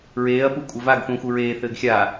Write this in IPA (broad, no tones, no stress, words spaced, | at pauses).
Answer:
ɹeːɐ̯pu kʷʼɘvaɡθũ xuɹeːθɘːɡ xʲa